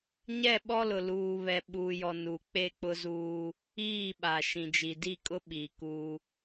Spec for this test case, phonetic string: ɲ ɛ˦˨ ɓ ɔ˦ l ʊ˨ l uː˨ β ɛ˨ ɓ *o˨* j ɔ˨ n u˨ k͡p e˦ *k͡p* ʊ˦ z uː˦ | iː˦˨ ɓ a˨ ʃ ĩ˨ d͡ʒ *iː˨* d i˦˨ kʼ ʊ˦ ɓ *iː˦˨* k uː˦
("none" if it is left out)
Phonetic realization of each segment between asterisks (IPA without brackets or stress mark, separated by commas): u˨, k͡p, i˨, iː˨